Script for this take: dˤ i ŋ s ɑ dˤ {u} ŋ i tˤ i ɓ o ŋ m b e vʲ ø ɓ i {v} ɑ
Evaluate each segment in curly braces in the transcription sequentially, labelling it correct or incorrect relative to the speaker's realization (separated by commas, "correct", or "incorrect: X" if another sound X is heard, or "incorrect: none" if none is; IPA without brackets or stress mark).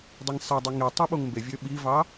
correct, correct